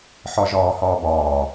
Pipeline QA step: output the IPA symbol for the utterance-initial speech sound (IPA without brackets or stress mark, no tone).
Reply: ħ